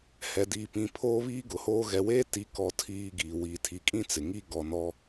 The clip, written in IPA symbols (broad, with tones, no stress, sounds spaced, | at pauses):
h ɛ˨ d iː˨ p ĩ˨ pʰ oː˦ β iː˦ ɡ ʊ˨ h oː˦ ɣ ɛ˨ w eː˦ t i˨˦ k ɔ˦ tʰ iː˦ ɡ iː˨ w i˨ tʰ i˨ kʼ ĩ˦ t͡s ɪ˨ ŋ i˦ ɡ ɔ˨ n ɔ˦